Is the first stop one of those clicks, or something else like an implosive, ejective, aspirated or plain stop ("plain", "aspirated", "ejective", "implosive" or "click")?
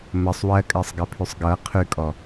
ejective